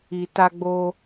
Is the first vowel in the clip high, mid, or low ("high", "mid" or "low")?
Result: high